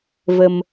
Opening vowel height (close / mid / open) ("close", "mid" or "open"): mid